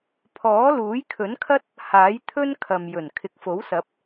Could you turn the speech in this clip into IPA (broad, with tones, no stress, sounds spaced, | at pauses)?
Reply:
pʰ ɔː˨˥ l uː˨˥ j kʰ ɵ˨˥ n kʰ ɐ˥ t̚ | h aː˨˥ j t̪ʰ ɵ˥ n kʰ ɐ˨ m j ɵ˨˩ n kʰ ɪ˨ k̚ f o˨˥ w s ɐ˨˥ p̚